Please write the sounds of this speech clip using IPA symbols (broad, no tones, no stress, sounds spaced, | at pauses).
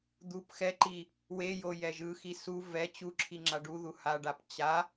d̪ u p x ɛ ǃ i | w e j o j ɛ ʒ ɯ x i s u v ɛ t͡ɕ u ǁʰ i ŋ͡ǁ a ɖ u ð u h a ɖ a p t͡ɕ a